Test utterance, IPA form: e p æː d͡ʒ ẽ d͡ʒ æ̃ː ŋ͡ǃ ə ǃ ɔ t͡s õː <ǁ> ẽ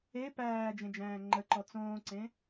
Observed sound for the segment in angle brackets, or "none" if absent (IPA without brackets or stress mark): ǀ